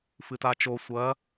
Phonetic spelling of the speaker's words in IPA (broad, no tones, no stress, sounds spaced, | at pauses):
f ɨ t a t͡ʃ o sʷ ɐ